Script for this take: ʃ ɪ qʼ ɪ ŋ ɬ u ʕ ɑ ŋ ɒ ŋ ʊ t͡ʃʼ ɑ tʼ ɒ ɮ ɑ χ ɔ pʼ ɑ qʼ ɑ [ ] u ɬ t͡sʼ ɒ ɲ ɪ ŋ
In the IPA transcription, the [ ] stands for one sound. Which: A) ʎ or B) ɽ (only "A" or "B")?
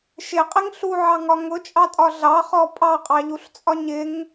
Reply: A